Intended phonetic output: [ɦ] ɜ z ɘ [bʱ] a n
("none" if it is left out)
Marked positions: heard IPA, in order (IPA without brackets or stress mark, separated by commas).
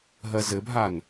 ɦ, bʱ